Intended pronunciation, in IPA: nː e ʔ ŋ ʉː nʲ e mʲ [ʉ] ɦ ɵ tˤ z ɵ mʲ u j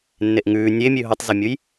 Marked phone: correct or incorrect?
correct